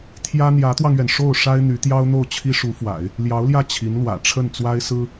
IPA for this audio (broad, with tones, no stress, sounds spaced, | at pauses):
t̪ʰ j ä˥ n̪ j ä˧˥ t̪ w ɑ˧ ŋ ɥ ɛ˩ n ʂ o˥˩ ʊ̯ ʂ a˥ ɪ̯ n̪ y˧˥ t̪ j ɑ˥ ʊ̯ n̪ o˥˩ ʊ̯ t͡ɕʰ i˥ ʂ u˧˥ f w a̰˨˩˦ ɪ̯ | l j ɑ˧˥ ʊ̯ l j ä˥˩ t͡ɕʰ i˧˥ n l w ä̰˨˩ ʈ͡ʂʰ ə˥˩ n t͡s w a˥ ɪ̯ s ɹ̩˥